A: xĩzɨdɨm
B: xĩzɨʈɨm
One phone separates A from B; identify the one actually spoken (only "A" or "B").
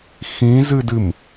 A